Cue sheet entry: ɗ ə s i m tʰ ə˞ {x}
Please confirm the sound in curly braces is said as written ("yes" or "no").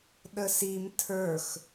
yes